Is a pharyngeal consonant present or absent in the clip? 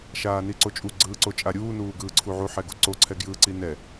present